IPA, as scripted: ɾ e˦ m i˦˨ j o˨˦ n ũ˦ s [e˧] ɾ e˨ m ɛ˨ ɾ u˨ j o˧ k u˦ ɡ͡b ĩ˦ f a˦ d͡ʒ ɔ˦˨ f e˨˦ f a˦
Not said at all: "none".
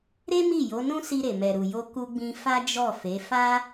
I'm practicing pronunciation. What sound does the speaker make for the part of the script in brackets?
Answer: i˧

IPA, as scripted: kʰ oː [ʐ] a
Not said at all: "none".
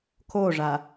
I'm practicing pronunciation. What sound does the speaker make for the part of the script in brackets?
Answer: ʐ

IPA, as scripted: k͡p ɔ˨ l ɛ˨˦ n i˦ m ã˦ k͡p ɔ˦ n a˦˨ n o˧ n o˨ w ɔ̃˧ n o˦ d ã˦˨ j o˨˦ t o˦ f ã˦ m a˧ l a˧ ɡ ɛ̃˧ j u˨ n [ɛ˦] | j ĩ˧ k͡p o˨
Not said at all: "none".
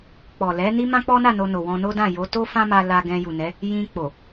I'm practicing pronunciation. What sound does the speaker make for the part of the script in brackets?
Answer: ɛ˨˦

